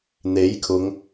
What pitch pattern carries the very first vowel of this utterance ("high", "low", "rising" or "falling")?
rising